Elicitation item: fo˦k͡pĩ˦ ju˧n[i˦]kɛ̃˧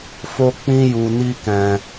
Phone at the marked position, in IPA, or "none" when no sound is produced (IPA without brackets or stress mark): i˦